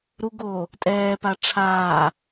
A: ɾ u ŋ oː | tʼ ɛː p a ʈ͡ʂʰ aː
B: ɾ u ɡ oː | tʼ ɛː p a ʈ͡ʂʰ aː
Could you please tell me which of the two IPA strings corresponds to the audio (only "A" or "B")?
B